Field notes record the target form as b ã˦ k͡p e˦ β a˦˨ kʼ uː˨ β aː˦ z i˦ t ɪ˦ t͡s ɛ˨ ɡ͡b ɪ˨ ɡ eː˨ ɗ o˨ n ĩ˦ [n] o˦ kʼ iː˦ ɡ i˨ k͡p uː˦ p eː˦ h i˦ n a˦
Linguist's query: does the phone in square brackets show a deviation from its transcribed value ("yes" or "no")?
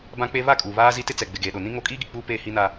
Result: yes